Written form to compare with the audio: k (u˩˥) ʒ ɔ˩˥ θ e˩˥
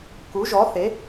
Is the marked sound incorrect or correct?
correct